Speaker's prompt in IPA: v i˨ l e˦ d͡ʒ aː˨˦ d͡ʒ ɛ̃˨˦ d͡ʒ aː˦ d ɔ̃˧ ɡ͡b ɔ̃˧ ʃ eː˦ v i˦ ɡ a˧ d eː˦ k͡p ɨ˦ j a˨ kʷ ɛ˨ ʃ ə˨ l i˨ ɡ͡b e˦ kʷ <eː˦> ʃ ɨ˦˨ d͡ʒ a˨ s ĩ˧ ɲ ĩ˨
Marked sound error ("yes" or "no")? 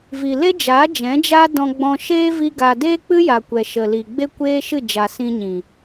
no